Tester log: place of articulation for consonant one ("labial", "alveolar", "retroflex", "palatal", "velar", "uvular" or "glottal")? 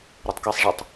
alveolar